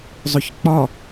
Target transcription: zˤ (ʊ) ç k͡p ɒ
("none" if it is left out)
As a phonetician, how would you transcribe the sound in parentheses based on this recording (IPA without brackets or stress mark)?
ʊ